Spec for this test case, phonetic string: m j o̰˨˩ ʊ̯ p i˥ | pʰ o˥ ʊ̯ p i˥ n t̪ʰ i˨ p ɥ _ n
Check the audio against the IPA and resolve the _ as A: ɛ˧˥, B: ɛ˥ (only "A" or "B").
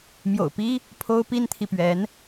A